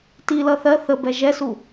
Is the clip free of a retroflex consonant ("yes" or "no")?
yes